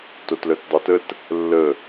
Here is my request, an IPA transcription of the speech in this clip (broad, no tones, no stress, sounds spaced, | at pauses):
t o t l œ t dˤ o t ə t | lː ə